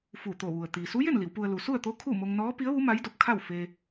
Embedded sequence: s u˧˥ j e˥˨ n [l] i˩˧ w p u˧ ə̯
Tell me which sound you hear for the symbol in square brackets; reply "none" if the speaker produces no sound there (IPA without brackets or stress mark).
l